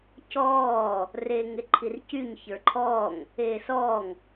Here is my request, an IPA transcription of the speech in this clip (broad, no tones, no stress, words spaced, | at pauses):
cɔː | reːŋeǃʰircyɲ çə˞ǃʰɔːŋ | eːsɔːŋ